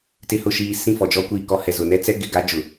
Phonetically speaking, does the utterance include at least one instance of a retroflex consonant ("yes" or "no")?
no